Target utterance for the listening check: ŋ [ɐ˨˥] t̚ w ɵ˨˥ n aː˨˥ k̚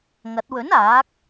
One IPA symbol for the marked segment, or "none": ɐ˨˥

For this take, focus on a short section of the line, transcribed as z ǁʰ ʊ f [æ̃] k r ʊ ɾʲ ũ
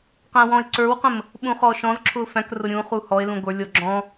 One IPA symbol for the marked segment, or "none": æ̃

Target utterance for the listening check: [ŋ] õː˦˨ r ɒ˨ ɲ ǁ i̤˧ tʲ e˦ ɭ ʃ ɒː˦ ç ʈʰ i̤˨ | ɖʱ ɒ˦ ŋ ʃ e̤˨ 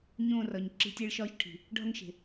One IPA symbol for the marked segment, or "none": ɲ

